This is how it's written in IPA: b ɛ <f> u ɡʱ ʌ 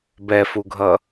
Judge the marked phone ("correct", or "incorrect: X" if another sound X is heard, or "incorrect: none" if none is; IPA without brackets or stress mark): correct